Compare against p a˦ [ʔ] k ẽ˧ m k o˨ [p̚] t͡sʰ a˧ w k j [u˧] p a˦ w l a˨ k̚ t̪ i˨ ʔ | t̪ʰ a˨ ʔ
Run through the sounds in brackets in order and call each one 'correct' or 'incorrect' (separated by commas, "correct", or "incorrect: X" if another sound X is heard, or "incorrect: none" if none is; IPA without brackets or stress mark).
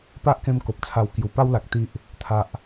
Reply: correct, correct, incorrect: u˨˩